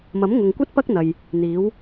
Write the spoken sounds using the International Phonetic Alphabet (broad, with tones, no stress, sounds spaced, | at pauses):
m ɐ˨˥ m ŋ ʊ˨ ŋ kʷ ɐ˥ t̚ p ɐ˥ k̚ n̪ ɐ˨ j | n̪ iː˨˥ w